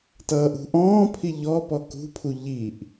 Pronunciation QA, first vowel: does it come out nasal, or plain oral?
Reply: oral